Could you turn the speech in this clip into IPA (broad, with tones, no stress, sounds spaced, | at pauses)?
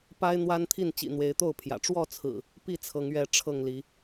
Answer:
p a˦ ɪ̯ n̪ w a˦ n t̪ʰ i˥˨ n t͡ɕ ḭ˨˩ n̪ w e˨˦ ɪ̯ t̪ o˥˨ ʊ̯ pʰ j ä̰˨˩ ʈ͡ʂ w ɔ˥˨ t͡sʰ ɹ̩˨˩ | p i˥˨ t͡sʰ ɤ˨˦ ŋ ɥ ɛ˨˦ ʈ͡ʂʰ ɤ˥˨ ŋ l i˨˦